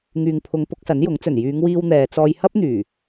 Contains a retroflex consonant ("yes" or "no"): no